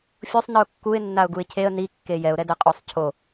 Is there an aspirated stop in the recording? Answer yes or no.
yes